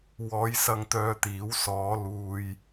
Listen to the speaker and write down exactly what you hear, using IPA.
w ɔː˨˧ j s ɐ˧ ŋ t̪ œː˧ t̪ iː˨˥ w s ɔː˨˧ l uː˧ j

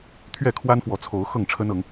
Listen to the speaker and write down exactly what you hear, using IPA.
t̪ʰ ɥ ɛ˥˨ kʰ w a˦ n f w ɔ˨˦ t͡sʰ o˨˦ ʊ̯ x ɤ˥˨ ŋ ʈ͡ʂʰ ə˦ n ɤ˨˦ ŋ

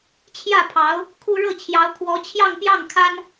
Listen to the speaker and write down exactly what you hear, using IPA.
t͡ɕʰ j ä˥˩ pʰ ɑ˧˥ ʊ̯ | kʰ u˥ ɻ ɤ˥˩ t͡ɕʰ j ɑ˧˥ ʊ̯ kʰ w ɔ˧˥ t͡ɕʰ j ɑ˥˧ ŋ p j ɑ˥˩ ŋ kʰ a˥ n

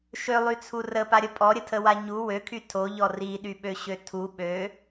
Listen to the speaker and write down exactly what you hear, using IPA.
ʃ ø lˠ y t͡sʰ u r ə p a ɾʲ ə pʼ ɔ ɾʲ ə tʰ ə w a ɲ u w ø kʰ y tʰ o ʎ ɔ r i ɗ y ɓ ø ɕ ø tʰ u ɓ ø

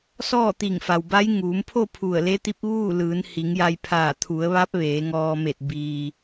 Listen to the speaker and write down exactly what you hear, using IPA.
s ɔː˥˨ t̪ i˧˩ ŋ f a˩ w b a˧˥ j ŋ uː˩˧ m pʰ o˥˨ pʰ u˧˩ ə̯ l e˧˥ t̪ i˧˥ p̚ ʋ uː˥˨ l ɯː˩˧ n h i˩˧ ŋ j a˧ j pʰ aː˧˩ t̪ʰ u˩˧ ə̯ ʋ a˧˥ p̚ ʋ eː˩˧ ŋ ɔː˧ m e˧˩ t̚ b iː˩

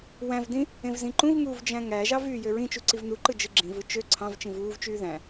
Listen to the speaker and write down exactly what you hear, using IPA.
w æ̃ v d ĩ | ẽ v z ĩ ǃ ũ v ŋ uː v d͡ʒ æ̃ ŋ æ ʒ ɑ v yː j ø ɹ ĩ t͡ʃ u ǀ i v n u ǃ ɯ d͡ʒ ɯ ɡ͡ǁ ĩ v ɯ t͡ʃ ø ǀʰ ɑ̃ v t͡ʃ ĩ v uː v t͡ʃ yː ð æ̃

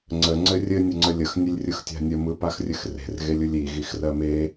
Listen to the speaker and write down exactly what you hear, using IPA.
ŋ͡ǀ ə ŋ͡ǀ ɘ rʲ ɘ nʲ ə ŋ͡ǀ ə lʲ ə x nʲ ɘ lʲ rʲ ɯ x tʲ a̤ nʲ ə m ɯ p a x rʲ ɘ x r e̤ r ɣ e lʲ ɯ lʲ i ɣ i x r ɜ m e

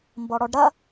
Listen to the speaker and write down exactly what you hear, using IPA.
m b ɔ ɽ ɔ ɖ ɾ ɐ

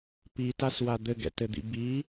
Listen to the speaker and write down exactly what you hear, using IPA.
p i t a s w a d̪ ɘ ɡ ɛ̰ t ɘ d̪ ḭ b i

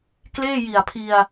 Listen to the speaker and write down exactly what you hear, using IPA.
k l eː˥˩ j i˨˩ a̯ pʰ i˧ a̯

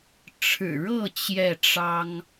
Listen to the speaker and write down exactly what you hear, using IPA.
ʈ͡ʂʰ ɻ̩˨˩ ɻ ɤ˥˨ t͡ɕ j ɛ˥˨ ʈ͡ʂ ɑ˦ ŋ

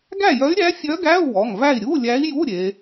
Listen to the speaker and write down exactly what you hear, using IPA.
ɡ æ˥˨ j œ˧˥ y̯ ɾʲ æ˧˥ fʲ œ˧˥ ɡ æ˧˥˧ u̯ w ɔ˩˧˩ ŋ v æ˥˨ i̯ ɾʲ u˧˥˧ lʲ æ˧˥ i̯ j u˧˥˧ ɾʲ e˩˧

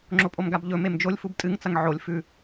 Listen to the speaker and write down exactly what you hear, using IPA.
ŋ͡ǁ o pʼ o m ɡ a b ʎ ɵ m e m d͡ʒ o lʲ f u b tʼ ɨ ŋ t͡s ɐ ŋ ʕ o lʲ f ʉ

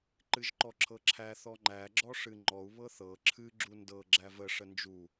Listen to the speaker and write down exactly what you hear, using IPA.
ǃ ɨ ʒ ǃ ɔ ǁʰ ɤ ǁʰ æ θ ɔ ŋ͡ǃ æ ɡ͡ǁ ɔ ʂ ɨ ŋ͡ǃ ɔ u̯ β ɤ θ ɤ ǁʰ ɨ ɡ͡ǁ u n d ɤ ɡ͡ǁ æ v ə ʂ ə n d͡ʒ u

